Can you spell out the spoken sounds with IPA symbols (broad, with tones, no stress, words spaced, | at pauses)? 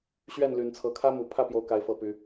ɕɥɛ˥˨n ly˨˦nt͡sʰɤ˨˦ kʰä˦mu˨˩pʰä˥˨ pjo˥˨ʊ̯ka˦ɪ̯ fɤ˥˨py˨˦